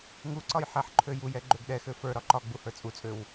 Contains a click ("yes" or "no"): yes